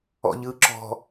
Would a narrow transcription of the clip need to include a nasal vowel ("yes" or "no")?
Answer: no